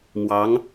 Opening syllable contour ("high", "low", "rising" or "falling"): rising